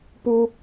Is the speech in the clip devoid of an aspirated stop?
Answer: yes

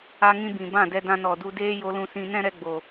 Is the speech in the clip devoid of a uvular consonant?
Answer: yes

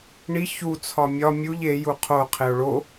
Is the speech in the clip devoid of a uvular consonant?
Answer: no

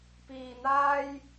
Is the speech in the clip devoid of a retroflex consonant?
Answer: yes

